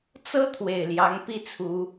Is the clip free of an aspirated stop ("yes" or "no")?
no